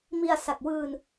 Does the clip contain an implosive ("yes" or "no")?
no